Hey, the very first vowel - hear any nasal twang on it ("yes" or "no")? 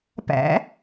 no